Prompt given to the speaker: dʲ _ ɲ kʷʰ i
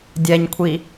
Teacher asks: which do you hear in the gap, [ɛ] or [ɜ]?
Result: ɛ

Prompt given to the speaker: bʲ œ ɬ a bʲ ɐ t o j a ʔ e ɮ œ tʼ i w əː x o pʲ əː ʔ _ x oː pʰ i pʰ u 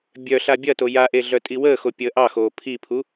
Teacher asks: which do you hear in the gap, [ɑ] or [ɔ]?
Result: ɑ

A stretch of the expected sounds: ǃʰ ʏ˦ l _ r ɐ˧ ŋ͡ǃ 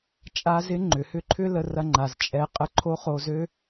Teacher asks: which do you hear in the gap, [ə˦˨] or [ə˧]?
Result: ə˧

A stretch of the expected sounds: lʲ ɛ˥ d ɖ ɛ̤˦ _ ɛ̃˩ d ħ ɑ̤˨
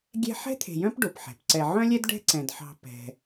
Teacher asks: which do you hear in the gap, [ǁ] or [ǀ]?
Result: ǀ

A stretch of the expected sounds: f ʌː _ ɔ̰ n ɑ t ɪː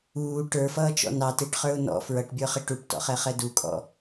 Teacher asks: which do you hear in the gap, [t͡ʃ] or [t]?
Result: t͡ʃ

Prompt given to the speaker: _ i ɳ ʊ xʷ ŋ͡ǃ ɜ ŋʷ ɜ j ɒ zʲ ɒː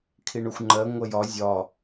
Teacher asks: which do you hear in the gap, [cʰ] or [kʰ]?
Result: kʰ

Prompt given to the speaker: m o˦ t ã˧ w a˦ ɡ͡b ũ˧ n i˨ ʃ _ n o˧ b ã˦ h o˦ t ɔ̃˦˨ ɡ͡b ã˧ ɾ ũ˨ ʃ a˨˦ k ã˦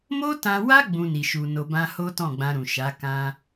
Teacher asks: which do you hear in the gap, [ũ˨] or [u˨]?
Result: u˨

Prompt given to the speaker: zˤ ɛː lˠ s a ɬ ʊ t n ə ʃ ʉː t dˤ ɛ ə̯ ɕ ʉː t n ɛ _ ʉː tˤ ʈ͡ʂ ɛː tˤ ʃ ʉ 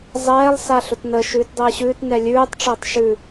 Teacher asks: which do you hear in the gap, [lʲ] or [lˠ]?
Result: lʲ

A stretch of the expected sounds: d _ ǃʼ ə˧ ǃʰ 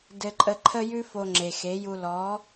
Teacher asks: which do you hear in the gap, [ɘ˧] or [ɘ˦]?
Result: ɘ˧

